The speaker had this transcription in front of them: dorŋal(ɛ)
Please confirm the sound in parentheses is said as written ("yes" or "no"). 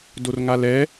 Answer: yes